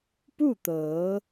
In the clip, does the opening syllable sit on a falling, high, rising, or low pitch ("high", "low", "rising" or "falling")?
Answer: falling